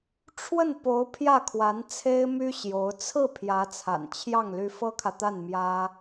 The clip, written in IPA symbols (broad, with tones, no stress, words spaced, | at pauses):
ʈ͡ʂʰwə˥˩n po˧˥ʊ̯ pʰjä˥˩kʰwa˧˥nt͡sʰe˥ɪ̯my˥ ɕjo˧˥ʊ̯ t͡sʰɹ̩˥˩ pʰjä˧˥t͡sʰa̰˨˩nt͡ɕʰjɑ˥˩ŋ ly˧˥fɤ˥kʰä˨ t̪a˥˩nmjä˥